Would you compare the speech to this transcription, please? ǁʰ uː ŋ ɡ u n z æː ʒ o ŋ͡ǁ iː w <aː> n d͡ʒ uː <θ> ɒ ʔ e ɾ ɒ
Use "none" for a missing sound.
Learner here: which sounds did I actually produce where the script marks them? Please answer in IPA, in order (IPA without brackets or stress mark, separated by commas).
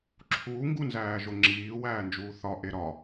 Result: æː, θ